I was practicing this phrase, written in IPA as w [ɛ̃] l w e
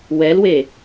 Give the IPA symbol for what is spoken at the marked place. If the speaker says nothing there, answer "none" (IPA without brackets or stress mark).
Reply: ɛ